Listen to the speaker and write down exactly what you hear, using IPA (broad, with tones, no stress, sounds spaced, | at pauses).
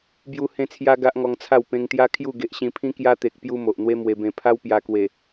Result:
b j u˧ h ẽ˧ t͡sʰ j a˧ ɡ a˦ ʔ ŋ ɔ˧ ŋ t͡sʰ a˥˧ w p ẽ˧ ŋ t̪ j a˦ kʰ j u˥˧ ɡ e˨ ʔ ɕ ĩ˧ pʰ ĩ˦ k j a˦ t̪ e˨ k̚ p j u˦ m o˨ ʔ n̪ w e˦ m w e˧ b ẽ˧ pʰ a˦ w p j a˧ k w e˨˩